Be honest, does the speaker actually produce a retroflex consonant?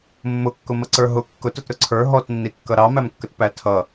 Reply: no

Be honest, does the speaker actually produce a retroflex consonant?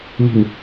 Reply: no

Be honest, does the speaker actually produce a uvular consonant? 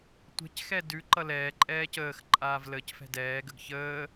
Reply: no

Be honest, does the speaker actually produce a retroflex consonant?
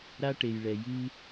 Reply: yes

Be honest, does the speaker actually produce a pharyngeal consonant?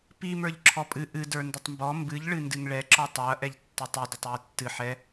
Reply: yes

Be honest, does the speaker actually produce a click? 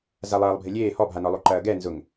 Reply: yes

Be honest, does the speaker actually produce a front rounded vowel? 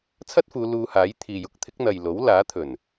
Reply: no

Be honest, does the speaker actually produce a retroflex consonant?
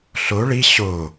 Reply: yes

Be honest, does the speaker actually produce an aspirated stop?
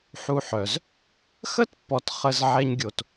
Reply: no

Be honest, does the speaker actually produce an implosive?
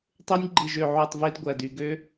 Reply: no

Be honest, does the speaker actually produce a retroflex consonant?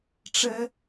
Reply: yes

